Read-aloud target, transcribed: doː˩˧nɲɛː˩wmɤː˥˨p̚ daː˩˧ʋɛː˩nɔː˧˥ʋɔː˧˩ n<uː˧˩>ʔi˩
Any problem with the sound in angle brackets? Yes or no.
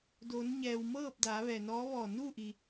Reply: yes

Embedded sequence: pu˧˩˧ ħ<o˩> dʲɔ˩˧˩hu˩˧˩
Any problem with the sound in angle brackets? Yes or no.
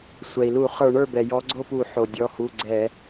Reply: no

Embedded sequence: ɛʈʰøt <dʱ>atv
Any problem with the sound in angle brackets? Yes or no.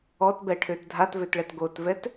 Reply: no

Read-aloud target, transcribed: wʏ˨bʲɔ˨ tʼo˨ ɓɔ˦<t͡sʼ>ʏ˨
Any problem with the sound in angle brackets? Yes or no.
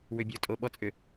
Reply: no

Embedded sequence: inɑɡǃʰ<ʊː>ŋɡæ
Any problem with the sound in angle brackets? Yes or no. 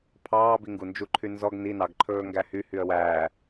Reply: yes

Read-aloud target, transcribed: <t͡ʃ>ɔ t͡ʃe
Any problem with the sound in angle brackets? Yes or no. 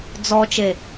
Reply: yes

